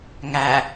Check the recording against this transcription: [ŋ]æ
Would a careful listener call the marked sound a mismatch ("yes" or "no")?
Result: no